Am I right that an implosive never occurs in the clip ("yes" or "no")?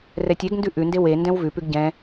yes